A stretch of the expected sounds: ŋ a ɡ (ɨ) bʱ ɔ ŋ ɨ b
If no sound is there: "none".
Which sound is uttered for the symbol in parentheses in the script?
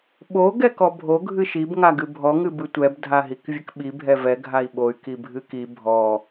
ɨ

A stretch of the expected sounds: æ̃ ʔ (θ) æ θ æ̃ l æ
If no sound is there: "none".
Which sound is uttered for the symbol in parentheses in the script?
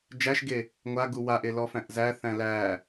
z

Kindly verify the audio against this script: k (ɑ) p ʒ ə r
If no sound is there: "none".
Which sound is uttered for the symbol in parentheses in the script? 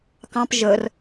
ɑ̃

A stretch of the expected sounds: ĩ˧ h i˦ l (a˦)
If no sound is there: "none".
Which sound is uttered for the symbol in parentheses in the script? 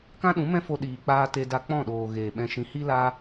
a˦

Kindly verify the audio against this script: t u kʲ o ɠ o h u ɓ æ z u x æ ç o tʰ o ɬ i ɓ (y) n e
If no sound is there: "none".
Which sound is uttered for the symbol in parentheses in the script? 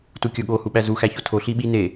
i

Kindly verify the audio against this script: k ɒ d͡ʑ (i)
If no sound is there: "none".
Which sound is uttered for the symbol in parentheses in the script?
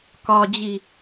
i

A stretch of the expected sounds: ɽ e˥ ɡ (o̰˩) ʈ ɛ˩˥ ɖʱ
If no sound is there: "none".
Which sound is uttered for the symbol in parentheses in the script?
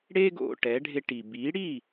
o̰˩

